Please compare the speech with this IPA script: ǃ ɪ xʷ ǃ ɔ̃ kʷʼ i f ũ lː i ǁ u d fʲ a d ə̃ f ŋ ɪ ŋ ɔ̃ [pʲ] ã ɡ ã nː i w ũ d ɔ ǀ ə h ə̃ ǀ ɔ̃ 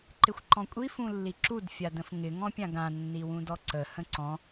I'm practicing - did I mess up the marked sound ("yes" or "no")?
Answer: no